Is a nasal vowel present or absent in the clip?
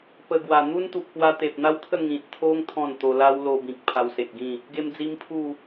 present